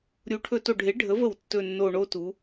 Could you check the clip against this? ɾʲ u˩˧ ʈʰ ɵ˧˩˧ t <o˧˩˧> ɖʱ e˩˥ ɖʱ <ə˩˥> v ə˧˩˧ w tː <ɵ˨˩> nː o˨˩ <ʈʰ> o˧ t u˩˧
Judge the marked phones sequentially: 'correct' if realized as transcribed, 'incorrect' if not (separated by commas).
incorrect, correct, correct, incorrect